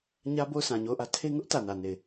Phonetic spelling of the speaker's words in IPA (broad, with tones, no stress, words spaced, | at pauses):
ɲä˦bo˦˨ʊ̯ sʰã˨ɲo˦˨ʊ̯ʔä˦ tʰe˦ ŋʊ˦ʔ tä˨nä˨ ne˦˨ɪ̯